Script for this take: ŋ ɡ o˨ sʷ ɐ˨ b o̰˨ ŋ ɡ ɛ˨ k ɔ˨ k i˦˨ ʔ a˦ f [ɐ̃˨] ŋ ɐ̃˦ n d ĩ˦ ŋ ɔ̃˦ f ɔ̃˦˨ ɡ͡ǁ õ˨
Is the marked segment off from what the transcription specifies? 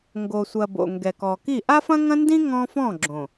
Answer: yes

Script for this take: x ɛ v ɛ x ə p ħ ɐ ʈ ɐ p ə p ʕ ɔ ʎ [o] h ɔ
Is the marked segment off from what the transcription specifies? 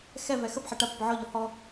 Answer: yes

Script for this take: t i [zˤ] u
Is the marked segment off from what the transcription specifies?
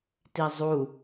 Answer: no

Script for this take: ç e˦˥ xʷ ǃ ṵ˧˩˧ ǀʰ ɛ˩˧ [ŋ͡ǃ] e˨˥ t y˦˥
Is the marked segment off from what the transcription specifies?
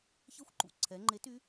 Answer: no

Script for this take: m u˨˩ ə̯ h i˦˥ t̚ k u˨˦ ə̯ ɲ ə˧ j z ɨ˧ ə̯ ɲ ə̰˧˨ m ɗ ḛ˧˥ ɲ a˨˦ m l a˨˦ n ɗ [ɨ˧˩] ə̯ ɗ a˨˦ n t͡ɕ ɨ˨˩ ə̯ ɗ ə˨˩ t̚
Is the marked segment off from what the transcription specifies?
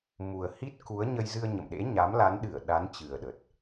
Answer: no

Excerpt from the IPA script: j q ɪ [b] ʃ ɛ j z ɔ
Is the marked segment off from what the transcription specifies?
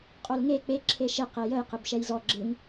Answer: no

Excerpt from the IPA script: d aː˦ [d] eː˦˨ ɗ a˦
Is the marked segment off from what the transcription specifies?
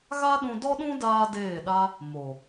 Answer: no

